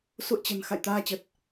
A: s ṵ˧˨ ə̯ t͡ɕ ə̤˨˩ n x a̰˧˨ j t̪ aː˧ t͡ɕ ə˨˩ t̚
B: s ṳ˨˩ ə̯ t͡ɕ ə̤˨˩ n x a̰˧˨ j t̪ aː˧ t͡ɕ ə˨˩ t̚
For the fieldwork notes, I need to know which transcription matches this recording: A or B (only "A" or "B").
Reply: A